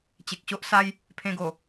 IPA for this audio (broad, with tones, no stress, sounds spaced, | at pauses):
t͡ɕ e˨ k̚ ɕ o˦ ʔ s a˦ j | pʰ ẽ˧ ɡ o˨˩